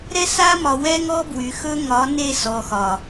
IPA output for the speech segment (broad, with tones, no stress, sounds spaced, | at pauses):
ɾ ɛ˦ s a˦ m ɒ˨ w ɛ˦ ŋ ɔ˦ b w y˨ x ɵ˦ ŋ ɒ˨˦ n e˦˨ s ɔ˨ x ɒ˨